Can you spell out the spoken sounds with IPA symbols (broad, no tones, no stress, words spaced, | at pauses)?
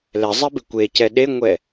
lɛzˤebɪ kʷecɛ ɗeŋʷɛ